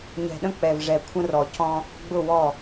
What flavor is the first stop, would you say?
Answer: implosive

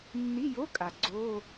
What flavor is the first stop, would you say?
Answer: ejective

